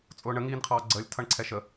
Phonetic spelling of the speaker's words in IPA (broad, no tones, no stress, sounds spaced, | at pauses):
t͡sʼ ʊː ɳ ə ŋ iː n qʰ ɑː ɡ͡ǀ əː lʲ tʰ ʌ ɳ ǀʰ ɛ ʃ ə